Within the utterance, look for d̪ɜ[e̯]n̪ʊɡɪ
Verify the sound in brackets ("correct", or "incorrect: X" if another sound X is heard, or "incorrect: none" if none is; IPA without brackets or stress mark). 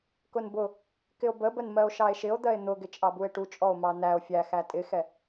correct